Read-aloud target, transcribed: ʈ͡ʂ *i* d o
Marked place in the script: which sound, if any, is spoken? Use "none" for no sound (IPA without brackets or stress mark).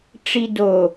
i